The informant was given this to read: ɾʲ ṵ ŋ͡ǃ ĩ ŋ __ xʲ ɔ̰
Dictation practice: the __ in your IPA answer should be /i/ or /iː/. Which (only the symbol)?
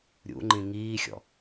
iː